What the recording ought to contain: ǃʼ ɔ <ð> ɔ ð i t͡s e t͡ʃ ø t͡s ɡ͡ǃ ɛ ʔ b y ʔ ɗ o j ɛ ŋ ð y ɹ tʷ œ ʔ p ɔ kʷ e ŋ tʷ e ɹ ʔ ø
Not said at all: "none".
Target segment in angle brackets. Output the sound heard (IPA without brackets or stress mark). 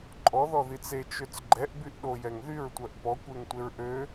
ð